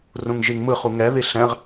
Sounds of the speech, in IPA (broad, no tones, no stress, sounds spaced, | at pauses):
r ũ ŋ ʒ i ŋ m ɯ χ u ŋ ɛ ð i ɬ ɛ̃ ʁ